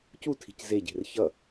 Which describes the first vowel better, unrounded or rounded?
rounded